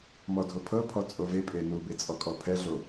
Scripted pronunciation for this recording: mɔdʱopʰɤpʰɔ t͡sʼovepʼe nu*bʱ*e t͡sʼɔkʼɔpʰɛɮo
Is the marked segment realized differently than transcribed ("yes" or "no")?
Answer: yes